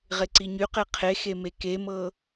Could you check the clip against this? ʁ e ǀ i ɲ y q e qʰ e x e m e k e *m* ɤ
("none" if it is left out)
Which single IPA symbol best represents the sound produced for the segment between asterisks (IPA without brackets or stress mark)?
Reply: m